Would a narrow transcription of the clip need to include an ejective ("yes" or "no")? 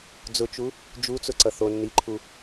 no